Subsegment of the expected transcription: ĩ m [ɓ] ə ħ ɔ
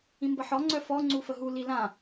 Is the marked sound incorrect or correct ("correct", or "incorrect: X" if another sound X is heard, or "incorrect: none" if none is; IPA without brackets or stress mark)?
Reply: incorrect: b